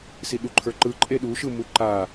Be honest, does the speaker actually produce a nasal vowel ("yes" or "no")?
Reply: no